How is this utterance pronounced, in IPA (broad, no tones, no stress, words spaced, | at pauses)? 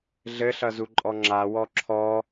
ɮɘɬʌ zuǃʼɔŋ͡ǁawɔ ǁʰɔ